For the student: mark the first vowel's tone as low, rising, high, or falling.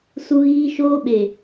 high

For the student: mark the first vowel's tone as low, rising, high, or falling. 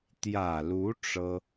low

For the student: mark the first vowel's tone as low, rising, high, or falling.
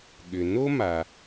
low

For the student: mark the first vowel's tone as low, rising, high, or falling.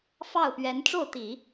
falling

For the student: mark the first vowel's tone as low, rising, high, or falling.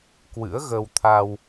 rising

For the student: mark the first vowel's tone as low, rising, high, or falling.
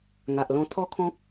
low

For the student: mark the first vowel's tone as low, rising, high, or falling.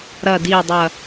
low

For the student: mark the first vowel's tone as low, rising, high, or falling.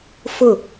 falling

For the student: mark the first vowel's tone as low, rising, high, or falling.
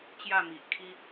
falling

